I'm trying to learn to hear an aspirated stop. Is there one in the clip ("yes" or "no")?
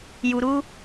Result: no